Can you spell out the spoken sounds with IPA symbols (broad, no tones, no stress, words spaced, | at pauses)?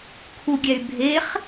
kʰuɡʲɛy̯bʱeχ